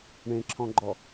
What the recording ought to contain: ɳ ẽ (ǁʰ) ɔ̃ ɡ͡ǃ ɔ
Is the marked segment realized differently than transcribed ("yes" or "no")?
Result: no